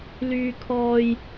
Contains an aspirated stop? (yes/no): yes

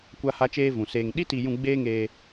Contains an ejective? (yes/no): no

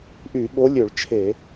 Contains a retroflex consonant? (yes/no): yes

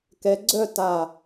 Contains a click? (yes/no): yes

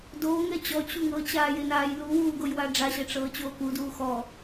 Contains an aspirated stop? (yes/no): no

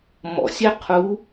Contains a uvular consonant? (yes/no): yes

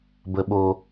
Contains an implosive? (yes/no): yes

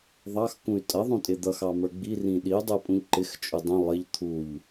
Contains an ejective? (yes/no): yes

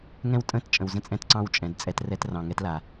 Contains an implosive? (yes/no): no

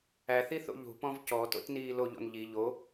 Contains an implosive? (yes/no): no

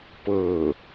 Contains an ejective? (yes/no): no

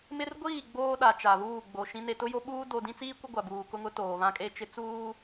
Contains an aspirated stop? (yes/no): no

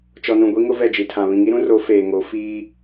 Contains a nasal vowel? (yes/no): yes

